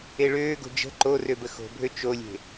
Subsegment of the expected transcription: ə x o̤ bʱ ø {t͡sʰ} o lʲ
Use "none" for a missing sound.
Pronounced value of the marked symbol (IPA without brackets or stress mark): t͡ʃ